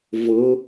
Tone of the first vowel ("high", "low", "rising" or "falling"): rising